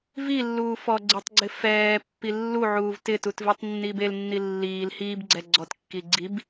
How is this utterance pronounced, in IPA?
v i lː uː f ɔ ɡ͡ǀ ɪ tˤ ɡ͡ǀ ɪ f ɛː pː i lː u ʕ uː v t ɪ t u t v i tˤ nː iː b e l nː i lː iː l h iː b ɡ͡ǀ ɛ ɡ͡ǀ ɔ t kː i ɡ͡ǀ i b

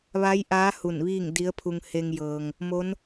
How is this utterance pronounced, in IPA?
ʋ a˧˥ j ʔ aː˧˥ h u˧˩ n ʋ iː˥˨ ŋ d i˧˥ ə̯ pʰ u˧ ŋ h e˧ ŋ j ɤː˩ ŋ | m o˧˥ n

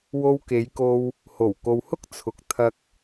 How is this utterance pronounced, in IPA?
w o˧ w k e˨˧ j k o˧ w | h o˨˩ w k o˨ w h ʊ˥ k̚ t͡sʰ ʊ˨˥ k̚ t̪ʰ ɐ˧ k̚

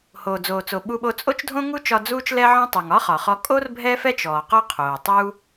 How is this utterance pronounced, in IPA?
h oː˩ d͡z oː˩ t͡s o˩ ɓ u˧ ɓ o˧ t͡sʼ o˥ t͡ʃ dʱ õ˥ ŋ u˥ t͡ʃ ɒ˧ d͡z uː˥ t͡ʃ l ɛ˥ ʕ ɔ̃˥ tˤ u˩ ŋ ɒ˥ χ ɒ˩ χ ɔ˧ kʼ o˥ r bʱ ɛ˥ f ɛ˥ t͡ʃ ɔː˩ q ɔ˥ qʰ oː˩ tˤ uː˥

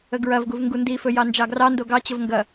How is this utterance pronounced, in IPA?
ə ɡ ɹ ɐ v ɡ u v ŋ ɡ u n d i f ɵ j ɑ n d͡ʒ ɑ ɡ r ɑ n d o ɡ ɑ t͡ɕ ə v ŋ ɡ ɐ

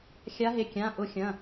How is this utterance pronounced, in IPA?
xʲ a˨˦ ɦ e˩˧˩ kʲ ã˩˧˩ ʔ ʊ˨˦ xʲ ɐ̃˩˧˩

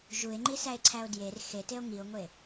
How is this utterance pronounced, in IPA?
ʒ u e̯ ŋ͡ǃ i s æ e̯ ǀʰ æ o̯ d j e r x e t e o̯ ŋ i o̯ ŋʷ e

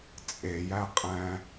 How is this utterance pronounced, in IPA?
t͡sʼ e j æ qʼ æ̃

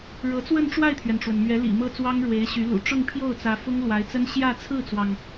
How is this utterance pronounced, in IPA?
ɻ ɤ˧˥ t͡s w ə˥˧ n ʈ͡ʂ w a˥˩ ɪ̯ t̪ʰ ɥ ɛ˩ n ʈ͡ʂ w ə˩ n m ɥ ɛ˧˥ l ḭ˨˩ m ɤ˥ t͡s w ɑ˥ ŋ ɻ w e˧˥ ɪ̯ ɕ y˧˥ l ṵ˨˩ ʈ͡ʂ ʊ˥˧ ŋ pʰ j o˥˩ ʊ̯ t͡s ä˧˥ f ʊ˥ ŋ l w a˧˥ ɪ̯ t͡s ə˥ n ɕ j ä˥˧ t͡sʰ ɹ̩˥˩ t͡s w ɑ˩ ŋ

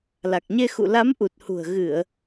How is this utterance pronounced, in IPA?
l a˨˩ k̚ ɲ e˧ x ṵ˧˨ l a˨˦ m ʔ u˨˩ t̚ h ṳ˨˩ ə̯ ɣ ɨ˧˩˨ ə̯

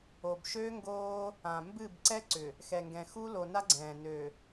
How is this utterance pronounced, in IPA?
o˨ b ʃ øː˦ ŋ ɡ oː˦ | ã˨ m b ɨ˦˨ b ǀ ɛ˦ ǀ ʏ˨ | x ɛ˨ ŋ ɡ ɛ̃˨ x u˦ l o˨ n a˦ ɡ͡ǀ ɛ̃ː˨ n ø˨

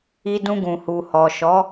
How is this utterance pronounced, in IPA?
i˧ d ũ˧ ɡ ũ˨ h u˨ h ɔ˨ ʃ ɔ˨˦

